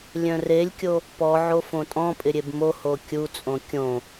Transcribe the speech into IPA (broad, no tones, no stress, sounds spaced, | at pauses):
lʲ œ̃ r e lʲ kʲ o | p ɔ ʕ o f õ tʼ ɔ̃ pʼ ɪ ɾʲ e b m o h o kʲ u t͡sʼ õ kʲ õ